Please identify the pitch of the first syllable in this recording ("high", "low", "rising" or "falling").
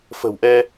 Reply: low